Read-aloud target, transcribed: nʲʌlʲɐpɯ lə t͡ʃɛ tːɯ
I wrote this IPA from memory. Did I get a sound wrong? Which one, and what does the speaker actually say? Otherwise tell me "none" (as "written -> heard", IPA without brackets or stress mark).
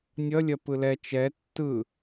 ə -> ɛ